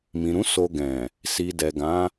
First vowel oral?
no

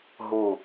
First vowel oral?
yes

